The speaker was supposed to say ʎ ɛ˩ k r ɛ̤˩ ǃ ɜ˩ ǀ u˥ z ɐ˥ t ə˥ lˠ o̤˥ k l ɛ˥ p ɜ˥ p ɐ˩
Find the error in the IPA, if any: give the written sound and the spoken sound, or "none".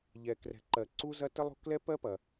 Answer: none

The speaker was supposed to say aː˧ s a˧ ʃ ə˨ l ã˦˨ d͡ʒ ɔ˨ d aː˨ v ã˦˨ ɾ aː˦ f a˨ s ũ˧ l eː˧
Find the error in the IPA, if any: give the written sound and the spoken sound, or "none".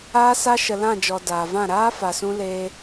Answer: none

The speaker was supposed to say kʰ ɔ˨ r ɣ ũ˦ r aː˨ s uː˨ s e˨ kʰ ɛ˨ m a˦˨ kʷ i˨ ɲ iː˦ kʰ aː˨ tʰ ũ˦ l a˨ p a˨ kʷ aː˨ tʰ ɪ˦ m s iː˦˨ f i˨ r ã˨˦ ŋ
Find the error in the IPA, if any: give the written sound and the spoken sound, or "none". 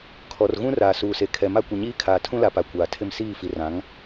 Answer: none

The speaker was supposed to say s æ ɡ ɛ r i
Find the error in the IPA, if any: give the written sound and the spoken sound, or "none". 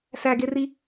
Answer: ɛ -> e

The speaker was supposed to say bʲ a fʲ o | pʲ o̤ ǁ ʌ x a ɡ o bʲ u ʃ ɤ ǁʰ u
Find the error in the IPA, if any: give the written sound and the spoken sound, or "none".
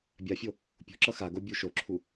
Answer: ɤ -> o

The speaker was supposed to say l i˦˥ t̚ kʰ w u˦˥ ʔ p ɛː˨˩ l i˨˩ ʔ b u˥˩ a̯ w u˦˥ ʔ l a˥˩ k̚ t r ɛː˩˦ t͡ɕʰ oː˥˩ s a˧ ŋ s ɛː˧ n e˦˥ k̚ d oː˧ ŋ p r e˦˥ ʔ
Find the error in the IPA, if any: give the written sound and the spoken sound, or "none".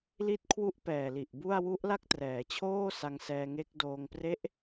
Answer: n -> ŋ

